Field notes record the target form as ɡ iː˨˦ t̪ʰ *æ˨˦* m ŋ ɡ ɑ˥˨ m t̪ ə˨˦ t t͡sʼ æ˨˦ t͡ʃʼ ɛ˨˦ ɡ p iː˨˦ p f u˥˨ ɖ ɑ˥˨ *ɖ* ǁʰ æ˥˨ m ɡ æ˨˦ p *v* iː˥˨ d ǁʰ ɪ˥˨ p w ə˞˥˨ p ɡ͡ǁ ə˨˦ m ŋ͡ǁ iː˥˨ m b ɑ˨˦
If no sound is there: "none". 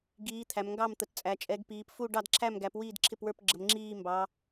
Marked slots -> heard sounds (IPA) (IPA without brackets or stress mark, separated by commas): æ˨˦, d, w